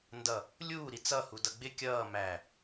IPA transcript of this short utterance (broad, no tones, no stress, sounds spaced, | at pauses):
n d ʌ | lʲ uː ɾ i t͡s ʌ h u d ʌ ɡ͡b ɪ kʲ ʌː m æ